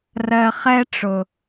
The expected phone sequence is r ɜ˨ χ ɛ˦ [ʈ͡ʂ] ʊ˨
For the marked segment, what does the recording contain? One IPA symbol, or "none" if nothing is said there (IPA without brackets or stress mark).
ʈ͡ʂ